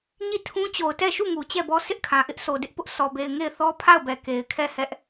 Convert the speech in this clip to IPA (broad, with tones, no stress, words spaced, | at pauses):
ɲi˦˨tʰũ˦ t͡ɕo˨ʊ̯tɛ˦˨ʃu˦˨ŋu˨ t͡ɕɛ˦˨bɔ˦ sɪ˦ʔkʰã˨ ʔɪ˦ʔsʰo˨ dɪ˦ʔpʊ˦ʔ sɔ˨be˨ɪ̯ ŋe˦˨ɪ̯θɔ˦pʰa˦˨ʊ̯bɛ˨ ke˨ɪ̯kʰɛ˦˨hɛ˦ʔ